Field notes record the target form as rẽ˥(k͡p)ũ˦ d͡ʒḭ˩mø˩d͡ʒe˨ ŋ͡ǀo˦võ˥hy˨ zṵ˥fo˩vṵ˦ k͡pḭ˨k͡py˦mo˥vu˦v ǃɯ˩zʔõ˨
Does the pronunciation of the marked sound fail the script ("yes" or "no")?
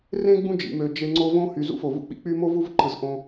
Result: yes